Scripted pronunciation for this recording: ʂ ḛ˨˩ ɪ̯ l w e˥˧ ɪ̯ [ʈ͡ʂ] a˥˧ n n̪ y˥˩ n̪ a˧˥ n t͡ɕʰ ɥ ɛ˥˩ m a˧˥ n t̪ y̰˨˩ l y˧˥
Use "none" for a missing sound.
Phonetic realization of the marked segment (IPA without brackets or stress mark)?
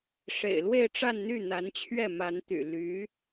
ʈ͡ʂ